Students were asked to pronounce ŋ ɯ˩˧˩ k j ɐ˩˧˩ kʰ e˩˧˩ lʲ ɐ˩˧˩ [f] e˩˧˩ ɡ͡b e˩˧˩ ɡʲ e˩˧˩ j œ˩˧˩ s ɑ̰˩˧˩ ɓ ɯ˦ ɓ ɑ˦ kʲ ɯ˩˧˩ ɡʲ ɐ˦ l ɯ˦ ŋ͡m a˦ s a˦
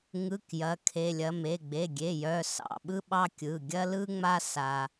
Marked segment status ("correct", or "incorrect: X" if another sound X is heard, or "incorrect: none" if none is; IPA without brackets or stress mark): incorrect: m